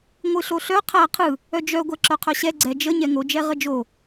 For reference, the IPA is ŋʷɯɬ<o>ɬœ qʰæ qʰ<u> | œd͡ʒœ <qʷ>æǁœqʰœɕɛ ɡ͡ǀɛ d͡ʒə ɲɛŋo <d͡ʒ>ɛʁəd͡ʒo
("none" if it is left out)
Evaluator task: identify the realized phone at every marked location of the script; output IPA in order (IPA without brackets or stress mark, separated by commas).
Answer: o, ɯ, ɡʷ, d͡ʒ